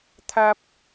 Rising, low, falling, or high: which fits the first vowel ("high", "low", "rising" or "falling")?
high